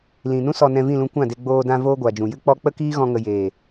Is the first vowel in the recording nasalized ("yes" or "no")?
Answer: yes